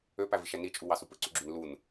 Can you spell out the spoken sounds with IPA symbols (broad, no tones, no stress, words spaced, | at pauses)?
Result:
øpæviʃæ nit͡ʃʼuwɑ supɯǀyɡ͡ǁyn lun